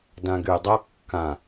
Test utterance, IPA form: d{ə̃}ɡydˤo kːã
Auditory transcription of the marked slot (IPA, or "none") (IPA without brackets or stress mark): ã